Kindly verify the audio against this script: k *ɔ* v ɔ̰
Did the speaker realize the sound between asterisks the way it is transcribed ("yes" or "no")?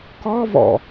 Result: yes